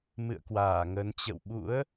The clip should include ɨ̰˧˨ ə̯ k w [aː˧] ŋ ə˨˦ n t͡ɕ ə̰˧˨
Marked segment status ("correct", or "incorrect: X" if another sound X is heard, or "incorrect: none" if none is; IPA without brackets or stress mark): incorrect: aː˧˩